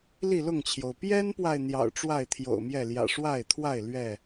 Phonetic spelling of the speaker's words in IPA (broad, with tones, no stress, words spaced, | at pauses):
li˥˨lʊ˥˨ŋt͡ɕʰjo˩ʊ̯ pjɛ˦npwa˨ɪ̯ n̪jɑ̰˨˩ʊ̯ʈ͡ʂwa˥˨ɪ̯t̪ʰjo̰˨˩ʊ̯mjɛ˥˨ ljä̰˨˩ʂwa˥˨ɪ̯t̪ʰwa˥˨ɪ̯ lɥɛ˥˨